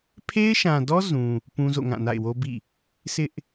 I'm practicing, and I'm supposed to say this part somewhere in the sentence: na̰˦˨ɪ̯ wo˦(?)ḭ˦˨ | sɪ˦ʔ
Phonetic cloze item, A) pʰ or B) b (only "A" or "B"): B